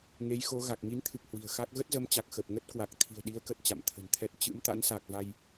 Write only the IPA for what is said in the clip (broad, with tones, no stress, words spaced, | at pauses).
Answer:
ŋe˨˦jxo˨˦ɣa˨˩k̚ ŋi˨˦nt̪ʰɨ˨˩k̚ hwi̤˨˩ə̯xa˦˥k̚ ɣə˦˥t̚zə˨˦mt͡ɕa˨˩k̚ xə˨˩p̚ŋə˦˥t̚kwa˨˩k̚ t̪ʰi̤˨˩ə̯ɗi˨˦ə̯kə˨˩t̚ t͡ɕa̰˧˨mt̪ʰə̤˨˩nt̪ʰɛ˦˥t̚ t͡ɕɨ̰˧˥mt̪a̰˧˥nsa˨˩k̚va˧j